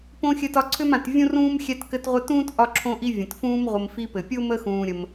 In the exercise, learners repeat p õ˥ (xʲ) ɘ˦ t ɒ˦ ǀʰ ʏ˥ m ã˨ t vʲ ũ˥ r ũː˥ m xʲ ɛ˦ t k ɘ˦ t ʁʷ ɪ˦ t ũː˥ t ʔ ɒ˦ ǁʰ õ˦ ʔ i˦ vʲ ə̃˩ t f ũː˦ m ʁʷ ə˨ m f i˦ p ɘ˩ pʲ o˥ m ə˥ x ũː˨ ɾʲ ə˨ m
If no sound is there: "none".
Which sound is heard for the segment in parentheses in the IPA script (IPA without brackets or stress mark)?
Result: xʲ